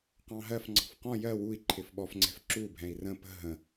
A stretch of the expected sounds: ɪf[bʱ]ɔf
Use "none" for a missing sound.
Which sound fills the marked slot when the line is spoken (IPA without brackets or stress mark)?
ɓ